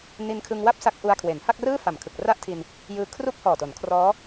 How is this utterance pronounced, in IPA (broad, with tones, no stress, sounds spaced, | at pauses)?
n i˧ n kʰ ɯ˧ ŋ w a˥˩ p̚ s a˦˥ k̚ ʔ u˧ a̯ kʰ w e˩˦ n h a˥˩ k̚ r ɯː˥˩ f a˨˩ m kʰ ɯ˨˩ k̚ r a˥˩ ʔ tʰ i˧ n | j ɯː˦˥ kʰ r u˥˩ k̚ h ɔː˨˩ t o˩˦ n kʰ r ɔː˦˥